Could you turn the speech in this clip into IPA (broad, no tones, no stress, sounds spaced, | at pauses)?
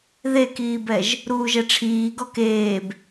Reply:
ð e k iː b ɛ ʒ | ɾ uː ʒ ɛ ʈ͡ʂʰ iː ɡ ɔ k eː b